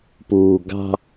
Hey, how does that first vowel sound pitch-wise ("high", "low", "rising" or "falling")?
low